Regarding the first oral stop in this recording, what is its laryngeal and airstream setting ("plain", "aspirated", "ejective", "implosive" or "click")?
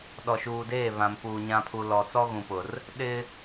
implosive